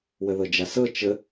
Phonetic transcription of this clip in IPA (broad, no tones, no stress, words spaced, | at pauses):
wəðɤd͡ʒasɤ t͡ʃə